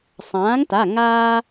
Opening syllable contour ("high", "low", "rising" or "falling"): rising